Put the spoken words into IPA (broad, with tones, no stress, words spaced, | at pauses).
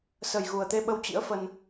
sə˨˩jɣu˨˩ə̯t̪e˧ ɓə˧wt͡ɕḭ˧˥ə̯fə˧n